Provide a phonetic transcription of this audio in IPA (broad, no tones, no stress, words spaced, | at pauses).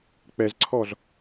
k͡pɛzǀʰɔz